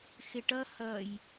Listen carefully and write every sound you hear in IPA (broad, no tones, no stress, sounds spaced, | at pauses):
x ɪ ʈ ʌ h ʌ j